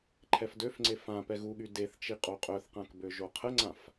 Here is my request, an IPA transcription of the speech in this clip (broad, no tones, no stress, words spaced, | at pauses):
ǃʰɛfdøfŋ͡ǀe fã pɛɣuɠy deθt͡ʃi qʼoqʼœθqãk bøʒoqʰəŋ͡ǀãf